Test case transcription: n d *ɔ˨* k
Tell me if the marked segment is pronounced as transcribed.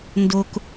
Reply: no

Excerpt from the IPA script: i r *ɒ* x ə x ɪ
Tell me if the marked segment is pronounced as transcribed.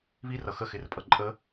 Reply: no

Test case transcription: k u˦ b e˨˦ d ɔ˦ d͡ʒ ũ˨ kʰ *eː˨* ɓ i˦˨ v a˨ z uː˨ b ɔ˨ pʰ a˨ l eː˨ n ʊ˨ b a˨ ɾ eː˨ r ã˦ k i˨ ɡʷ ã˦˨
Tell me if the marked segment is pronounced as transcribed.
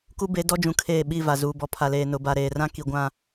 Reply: no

